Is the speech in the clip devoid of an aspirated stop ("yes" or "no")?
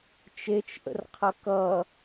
no